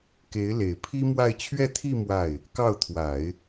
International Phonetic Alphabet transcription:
k e˧˥ ɪ̯ l e˨˩ ɪ̯ pʰ i˥ m w a˥˧ ɪ̯ t͡ɕʰ ɥ ɛ˥˧ t̪ʰ i˥˧ m w a˥˩ ɪ̯ | k ɑ˥˩ ʊ̯ t̪ʰ w a˨˩˦ ɪ̯

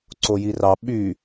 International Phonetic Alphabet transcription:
ǀ o j i r ɑ ɓ y

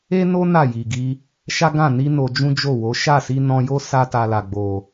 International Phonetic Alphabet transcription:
e˦ n o˦ n a˦˨ j i˨ ɡ i˧ | ʃ a˦ ɡ ã˦˨ n i˧ n o˧ d͡ʒ ũ˦ d͡ʒ o˦˨ w o˨˦ ʃ a˦˨ s i˧ n ɔ̃˧ j o˦ s a˦ t a˧ l a˨ ɡ͡b o˨

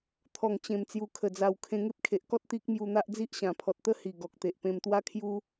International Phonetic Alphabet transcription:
t̪ʰ ɔ˨˩ ŋ t͡ɕ ẽ˨˩ m t͡s j u˨˩ kʰ ə˨˩ d͡z a˨˩ w kʰ ẽ˧ ŋ e˦ p̚ kʰ e˨ ʔ k ɔ˦ t̚ t̪ i˦ k̚ m j u˧ n̪ a˦ ʔ d͡z i˦ ʔ ɕ ã˨˩ pʰ ɔ˨ t̚ t̪ ə˦ h i˨˩ ɡ ɔ˨ k̚ t̪ e˨ ʔ p ẽ˧ m t̪ w a˦ kʰ j u˦

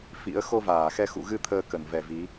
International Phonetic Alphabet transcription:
f ḭ˧˥ ə̯ x o˧ v aː˧˩ x ɛ˧ x ṵ˧˨ ɣ ɨ˧ t̪ʰ əː˧ k ə˧˩ n v ɛ˨˩ v i˨˦

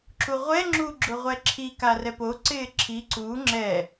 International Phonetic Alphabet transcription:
ǁ u ʁʷ ɛ ŋ͡ǁ u ɡ͡ǁ ʊ ʁʷ ɛ ǁʰ i k a r ɛ p o ǀ ɪː ǁʰ i ǀ u ŋ͡ǁ ɛ

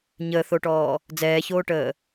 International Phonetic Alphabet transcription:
ɲ əː θ o ʈ ɔː | d͡z ɛː ç oː ʈ əː

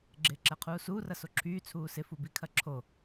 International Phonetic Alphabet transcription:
ɡ͡ǁ ɪː ǁ ɛ qʰ uː s uː r ɐ s o ǁʰ yː t͡sʰ uː s ɪ f u b i kʰ ɐ ǁʰ o

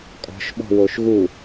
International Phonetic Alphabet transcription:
kʼ ɔ̤ ʃ ɓ ɔ̤ w o ʃ ɣ u

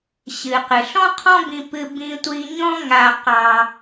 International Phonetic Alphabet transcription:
ɕ ɨ˩ q ɨ˩ ɬ ɔ̃˥ qʰ ɔ̃˥ b ĩ˧ p ɨ˧ b ĩ˧ tʷ i˧ ɲ ɔ̃˥ ŋ a˧ q ɑ˧

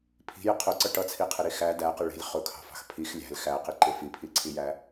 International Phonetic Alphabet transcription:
pʰ i̤ j ɪ qʰ ʊ ǀ ʌ ʈ ʌ t͡sʰ i qʰ ɪ ɾ i x æ d æ q ɪ ɭ i̤ lʲ χ ʊ kʰ ɑ̤ f ɑ̤ x pʰ i x lʲ æ̤ l x æ q i ǃ ɪ f i pʰ i ǀʰ i j æ

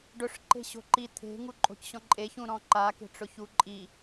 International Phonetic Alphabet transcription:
ɖ ʊ ʂ ǃ e̤ ɕ o̤ ǃ i t̪ʰ e̤ ŋ u ǃʼ o̤ c ɕ ɔ̃ ǃʼ e ç ũ ɾ ɔ̃ ǃ a k e̤ ʈ͡ʂ ʊ ç u ǃʼ i

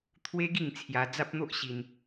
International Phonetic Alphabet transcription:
t̪ʰ w e˦ ɡ i˥˧ ŋ t͡sʰ j a˧ d͡z a˦ p̚ n̪ o˦ ʔ ɕ i˧ n

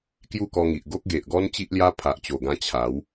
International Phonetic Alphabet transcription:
k j u˥˧ k ɔ˧ ŋ i˨ ʔ ɡ o˦ k̚ ɡ e˨ ʔ ɡ ɔ˦ n t͡ɕ i˦ ʔ l j a˦ pʰ a˨ ʔ t͡ɕ o˨˩ ɡ ã˧ t͡ɕʰ a˨˦ w

